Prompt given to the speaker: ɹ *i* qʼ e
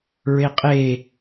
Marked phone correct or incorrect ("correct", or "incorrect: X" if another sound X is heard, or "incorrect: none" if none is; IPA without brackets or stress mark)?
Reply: incorrect: e